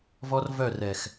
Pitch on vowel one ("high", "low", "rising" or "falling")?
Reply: high